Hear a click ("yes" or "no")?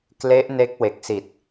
no